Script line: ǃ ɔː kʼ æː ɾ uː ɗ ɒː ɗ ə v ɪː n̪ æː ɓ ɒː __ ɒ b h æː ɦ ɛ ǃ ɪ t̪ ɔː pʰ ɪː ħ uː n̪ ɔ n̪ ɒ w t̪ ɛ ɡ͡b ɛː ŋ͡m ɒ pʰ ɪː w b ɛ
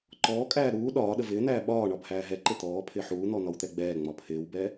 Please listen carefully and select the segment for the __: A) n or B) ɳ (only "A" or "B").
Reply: B